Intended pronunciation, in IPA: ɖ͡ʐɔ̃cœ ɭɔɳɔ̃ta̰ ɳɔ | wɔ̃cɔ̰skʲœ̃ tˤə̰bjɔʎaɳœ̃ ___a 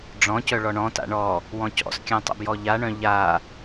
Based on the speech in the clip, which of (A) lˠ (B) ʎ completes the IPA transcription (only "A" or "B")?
B